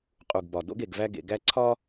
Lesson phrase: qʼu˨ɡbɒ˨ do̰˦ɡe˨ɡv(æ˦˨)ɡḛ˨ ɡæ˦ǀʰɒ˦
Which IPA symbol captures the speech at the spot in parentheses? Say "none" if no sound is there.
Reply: æ˦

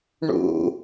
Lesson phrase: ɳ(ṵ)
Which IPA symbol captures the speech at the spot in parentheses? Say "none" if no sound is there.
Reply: ṵ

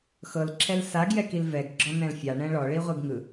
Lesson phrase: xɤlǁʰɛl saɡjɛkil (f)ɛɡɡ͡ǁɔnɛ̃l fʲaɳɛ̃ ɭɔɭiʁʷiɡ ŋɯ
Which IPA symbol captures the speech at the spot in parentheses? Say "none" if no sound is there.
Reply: v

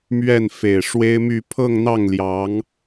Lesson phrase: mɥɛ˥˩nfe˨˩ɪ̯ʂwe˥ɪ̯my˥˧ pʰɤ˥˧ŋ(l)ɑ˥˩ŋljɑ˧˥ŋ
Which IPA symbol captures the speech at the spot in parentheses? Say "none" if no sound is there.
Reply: n̪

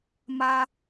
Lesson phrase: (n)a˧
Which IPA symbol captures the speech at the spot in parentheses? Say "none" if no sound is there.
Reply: m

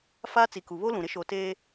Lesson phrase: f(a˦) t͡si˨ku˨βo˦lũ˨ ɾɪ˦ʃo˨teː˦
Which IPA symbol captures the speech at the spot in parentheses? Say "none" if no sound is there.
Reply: a˦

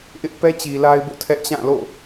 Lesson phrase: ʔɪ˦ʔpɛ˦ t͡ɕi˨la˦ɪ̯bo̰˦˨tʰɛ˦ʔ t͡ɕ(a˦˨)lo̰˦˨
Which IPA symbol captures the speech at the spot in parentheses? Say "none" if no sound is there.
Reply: ã˦˨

